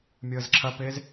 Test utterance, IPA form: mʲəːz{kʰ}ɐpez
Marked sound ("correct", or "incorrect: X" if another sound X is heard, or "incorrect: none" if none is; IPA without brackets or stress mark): incorrect: ǁʰ